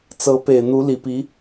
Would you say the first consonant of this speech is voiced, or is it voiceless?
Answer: voiceless